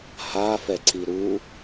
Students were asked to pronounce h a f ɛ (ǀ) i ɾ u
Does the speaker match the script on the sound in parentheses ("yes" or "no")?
yes